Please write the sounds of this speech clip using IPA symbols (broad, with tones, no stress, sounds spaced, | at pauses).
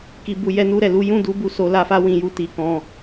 k i˧ b u˧ j ɛ˦ n u˦ ɾ ɛ˧ l u˦ j ũ˦˨ d u˧ b u˧ s o˧ l a˧ f a˦ w ĩ˧ j u˦ t i˧ k ɔ̃˧